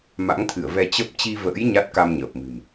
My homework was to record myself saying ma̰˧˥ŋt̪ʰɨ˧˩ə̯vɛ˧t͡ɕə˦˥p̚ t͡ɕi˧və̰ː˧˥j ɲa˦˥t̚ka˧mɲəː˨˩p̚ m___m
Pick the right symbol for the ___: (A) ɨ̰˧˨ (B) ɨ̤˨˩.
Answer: B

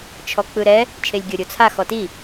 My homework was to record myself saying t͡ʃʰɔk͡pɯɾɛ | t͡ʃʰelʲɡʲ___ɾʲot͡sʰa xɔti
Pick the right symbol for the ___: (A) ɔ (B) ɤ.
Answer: B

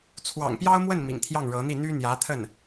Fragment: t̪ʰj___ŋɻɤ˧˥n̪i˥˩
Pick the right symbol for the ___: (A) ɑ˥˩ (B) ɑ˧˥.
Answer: A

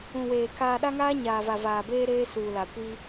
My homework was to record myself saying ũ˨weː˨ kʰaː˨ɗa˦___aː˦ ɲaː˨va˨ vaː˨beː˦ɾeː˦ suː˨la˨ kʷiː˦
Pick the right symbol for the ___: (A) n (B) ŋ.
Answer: B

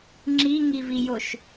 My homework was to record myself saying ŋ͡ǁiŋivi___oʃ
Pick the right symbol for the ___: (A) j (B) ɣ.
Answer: A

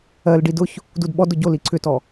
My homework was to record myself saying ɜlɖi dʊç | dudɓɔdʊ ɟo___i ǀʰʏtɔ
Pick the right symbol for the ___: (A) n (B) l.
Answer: B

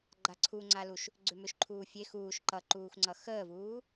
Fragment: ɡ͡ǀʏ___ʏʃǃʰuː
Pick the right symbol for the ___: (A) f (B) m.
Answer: B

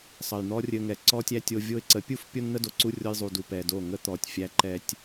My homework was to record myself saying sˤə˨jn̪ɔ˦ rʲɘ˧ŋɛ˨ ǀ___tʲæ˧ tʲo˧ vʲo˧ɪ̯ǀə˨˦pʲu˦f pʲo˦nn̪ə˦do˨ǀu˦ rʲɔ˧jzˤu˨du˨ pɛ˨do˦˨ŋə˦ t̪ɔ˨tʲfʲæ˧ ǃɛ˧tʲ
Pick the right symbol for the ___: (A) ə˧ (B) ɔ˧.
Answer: B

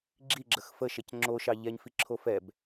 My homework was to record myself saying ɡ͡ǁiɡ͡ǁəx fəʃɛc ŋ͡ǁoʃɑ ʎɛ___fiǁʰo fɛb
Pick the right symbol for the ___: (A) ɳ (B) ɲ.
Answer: B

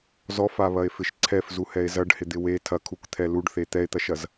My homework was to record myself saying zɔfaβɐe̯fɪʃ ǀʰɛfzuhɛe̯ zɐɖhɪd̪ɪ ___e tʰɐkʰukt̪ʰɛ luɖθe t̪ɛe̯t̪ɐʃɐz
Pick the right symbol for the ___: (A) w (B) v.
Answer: A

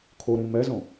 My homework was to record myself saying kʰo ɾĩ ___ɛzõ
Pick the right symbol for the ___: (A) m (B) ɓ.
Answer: A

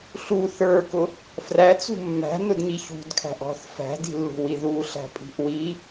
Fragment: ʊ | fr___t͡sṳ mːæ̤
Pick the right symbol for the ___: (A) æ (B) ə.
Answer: A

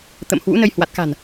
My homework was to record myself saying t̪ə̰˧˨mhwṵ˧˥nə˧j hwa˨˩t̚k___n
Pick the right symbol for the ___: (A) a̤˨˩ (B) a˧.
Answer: A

